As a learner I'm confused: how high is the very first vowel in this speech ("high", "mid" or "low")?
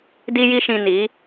high